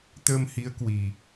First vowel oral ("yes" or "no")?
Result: yes